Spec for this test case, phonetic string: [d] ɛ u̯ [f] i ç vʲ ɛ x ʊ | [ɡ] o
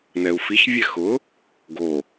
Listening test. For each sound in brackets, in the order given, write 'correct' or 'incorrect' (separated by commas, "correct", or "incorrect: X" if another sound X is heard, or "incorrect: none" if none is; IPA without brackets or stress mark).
incorrect: n, correct, correct